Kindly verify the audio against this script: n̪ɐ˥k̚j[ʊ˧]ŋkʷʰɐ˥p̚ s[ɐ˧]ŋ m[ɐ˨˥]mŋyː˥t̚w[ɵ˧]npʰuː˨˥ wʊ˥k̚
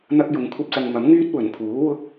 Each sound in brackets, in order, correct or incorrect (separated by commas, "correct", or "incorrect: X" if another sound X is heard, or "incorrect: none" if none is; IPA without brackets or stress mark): correct, correct, correct, incorrect: ɵ˨˩